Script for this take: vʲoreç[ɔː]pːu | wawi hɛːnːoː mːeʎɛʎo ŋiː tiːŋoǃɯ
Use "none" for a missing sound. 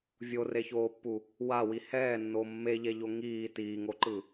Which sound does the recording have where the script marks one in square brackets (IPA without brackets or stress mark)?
oː